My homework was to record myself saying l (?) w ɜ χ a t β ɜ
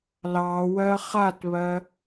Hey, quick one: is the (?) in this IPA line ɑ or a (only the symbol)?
ɑ